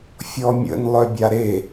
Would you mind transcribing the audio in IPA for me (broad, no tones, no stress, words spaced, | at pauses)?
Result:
fʲɔmʲə̰n lˠœbʲaɾe